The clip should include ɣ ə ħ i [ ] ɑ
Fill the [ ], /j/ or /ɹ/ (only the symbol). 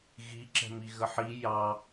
j